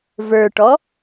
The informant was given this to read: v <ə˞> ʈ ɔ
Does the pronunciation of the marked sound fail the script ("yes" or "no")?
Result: no